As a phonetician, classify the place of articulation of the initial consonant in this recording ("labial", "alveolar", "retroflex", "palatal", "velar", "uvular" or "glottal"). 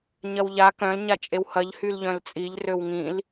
palatal